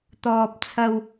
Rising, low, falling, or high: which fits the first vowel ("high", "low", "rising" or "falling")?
high